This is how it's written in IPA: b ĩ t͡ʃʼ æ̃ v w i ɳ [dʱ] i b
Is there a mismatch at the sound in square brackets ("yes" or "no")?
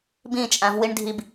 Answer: no